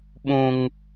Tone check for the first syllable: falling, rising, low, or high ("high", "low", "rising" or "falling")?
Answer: high